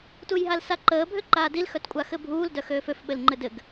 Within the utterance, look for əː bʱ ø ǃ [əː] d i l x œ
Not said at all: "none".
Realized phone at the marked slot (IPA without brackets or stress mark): aː